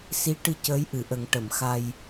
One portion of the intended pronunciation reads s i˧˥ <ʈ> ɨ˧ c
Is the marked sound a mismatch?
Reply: no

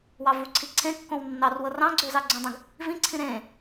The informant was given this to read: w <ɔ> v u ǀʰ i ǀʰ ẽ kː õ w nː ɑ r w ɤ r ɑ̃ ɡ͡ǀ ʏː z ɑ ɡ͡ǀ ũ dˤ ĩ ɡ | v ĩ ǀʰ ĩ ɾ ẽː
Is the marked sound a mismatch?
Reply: yes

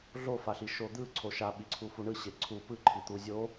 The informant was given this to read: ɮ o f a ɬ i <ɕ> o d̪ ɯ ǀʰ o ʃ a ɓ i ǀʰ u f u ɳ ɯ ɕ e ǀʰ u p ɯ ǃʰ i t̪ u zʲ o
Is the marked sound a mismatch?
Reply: yes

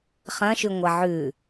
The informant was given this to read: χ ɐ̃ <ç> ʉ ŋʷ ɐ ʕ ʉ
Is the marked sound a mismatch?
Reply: yes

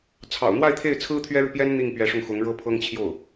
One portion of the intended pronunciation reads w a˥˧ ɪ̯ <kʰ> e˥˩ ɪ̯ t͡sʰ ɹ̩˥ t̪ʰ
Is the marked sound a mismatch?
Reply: yes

